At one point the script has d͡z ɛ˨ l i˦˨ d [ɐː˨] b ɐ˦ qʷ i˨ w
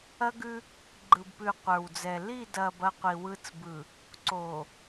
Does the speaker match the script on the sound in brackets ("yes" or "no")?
yes